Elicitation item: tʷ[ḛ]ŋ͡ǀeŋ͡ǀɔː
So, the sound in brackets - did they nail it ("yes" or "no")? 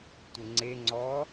no